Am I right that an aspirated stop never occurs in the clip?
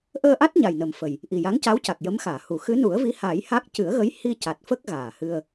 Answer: yes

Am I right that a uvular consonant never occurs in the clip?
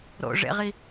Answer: no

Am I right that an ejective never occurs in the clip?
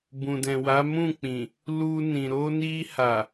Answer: yes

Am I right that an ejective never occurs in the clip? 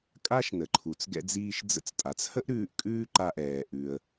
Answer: no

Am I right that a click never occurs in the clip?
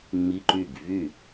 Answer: no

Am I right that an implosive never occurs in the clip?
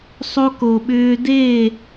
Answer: no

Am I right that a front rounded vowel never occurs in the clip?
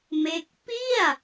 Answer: yes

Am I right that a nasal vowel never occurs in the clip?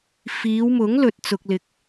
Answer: yes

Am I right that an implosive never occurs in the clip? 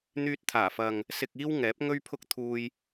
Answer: yes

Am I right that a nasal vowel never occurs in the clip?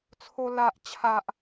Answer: yes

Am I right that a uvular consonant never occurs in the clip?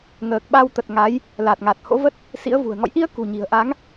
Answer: yes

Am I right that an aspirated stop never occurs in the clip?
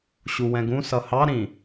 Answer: yes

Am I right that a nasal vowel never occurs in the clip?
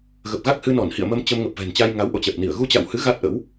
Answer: yes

